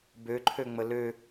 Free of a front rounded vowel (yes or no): no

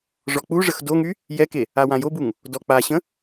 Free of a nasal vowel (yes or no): no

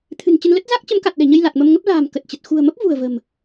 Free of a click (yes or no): yes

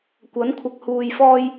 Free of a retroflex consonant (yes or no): yes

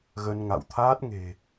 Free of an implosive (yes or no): yes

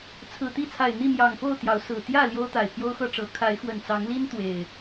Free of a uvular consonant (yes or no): yes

